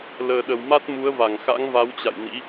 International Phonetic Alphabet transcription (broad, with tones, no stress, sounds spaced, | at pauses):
l əː˨˩ ɗ ə˨˩ w m a˦˥ t̚ m u˨˦ ə̯ v a˧˩ ŋ x a̰˧˥ ŋ v a˨˦ w t͡ɕ a̰˧˨ j n ḭ˧˥